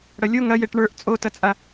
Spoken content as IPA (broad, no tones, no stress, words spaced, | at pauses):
ɽɐlʲo ŋɐjeʈ ɳə˞ʔ t͡sʼotɐt͡sʼa